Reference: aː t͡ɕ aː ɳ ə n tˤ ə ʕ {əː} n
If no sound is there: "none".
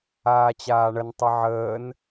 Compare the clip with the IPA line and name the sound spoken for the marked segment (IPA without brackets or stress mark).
əː